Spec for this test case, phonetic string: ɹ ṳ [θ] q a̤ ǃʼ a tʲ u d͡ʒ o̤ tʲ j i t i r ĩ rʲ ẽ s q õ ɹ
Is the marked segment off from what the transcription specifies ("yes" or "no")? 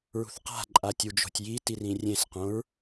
no